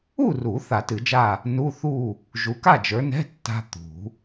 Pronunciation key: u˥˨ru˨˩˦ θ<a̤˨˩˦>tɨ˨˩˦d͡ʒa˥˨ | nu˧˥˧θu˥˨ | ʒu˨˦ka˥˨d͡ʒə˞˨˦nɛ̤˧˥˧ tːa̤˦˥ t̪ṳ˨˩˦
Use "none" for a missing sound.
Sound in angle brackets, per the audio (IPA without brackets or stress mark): a˨˩˦